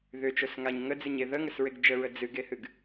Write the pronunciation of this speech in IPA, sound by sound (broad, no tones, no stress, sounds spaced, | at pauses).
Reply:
ð ʏ t͡ʃ o s ŋ a ɲ ŋ ə d͡z ɨ ɲ e ð ə ŋ ə s ɹ e ɡ d͡ʒ ə ɹ ə d͡z ɨ ɡ e h ɨ ɡ